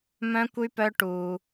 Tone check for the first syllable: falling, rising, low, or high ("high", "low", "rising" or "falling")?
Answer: high